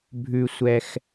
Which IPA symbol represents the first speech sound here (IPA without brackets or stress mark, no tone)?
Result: bʱ